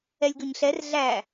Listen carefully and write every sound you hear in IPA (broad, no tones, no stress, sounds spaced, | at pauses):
ɛ lʲ ɡ ɵ ɲ ɬ ɛ r ɮ æ